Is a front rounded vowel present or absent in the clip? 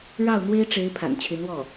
present